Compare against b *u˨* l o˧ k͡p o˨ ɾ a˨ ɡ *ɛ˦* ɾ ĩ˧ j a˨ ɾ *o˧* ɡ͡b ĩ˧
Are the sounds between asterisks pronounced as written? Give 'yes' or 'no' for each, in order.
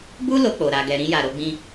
no, no, yes

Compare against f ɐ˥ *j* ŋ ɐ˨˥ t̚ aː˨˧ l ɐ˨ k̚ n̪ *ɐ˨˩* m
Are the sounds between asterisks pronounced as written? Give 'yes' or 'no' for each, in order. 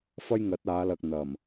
yes, yes

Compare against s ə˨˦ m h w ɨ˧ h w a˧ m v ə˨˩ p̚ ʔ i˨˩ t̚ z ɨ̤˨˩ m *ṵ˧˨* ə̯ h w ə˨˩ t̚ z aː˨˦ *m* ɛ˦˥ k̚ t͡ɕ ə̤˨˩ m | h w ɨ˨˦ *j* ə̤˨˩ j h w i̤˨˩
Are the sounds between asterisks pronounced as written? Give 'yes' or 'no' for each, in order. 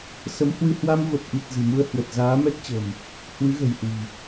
no, yes, no

